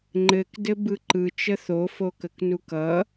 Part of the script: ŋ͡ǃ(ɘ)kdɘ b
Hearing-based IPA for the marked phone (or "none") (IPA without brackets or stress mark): ɘ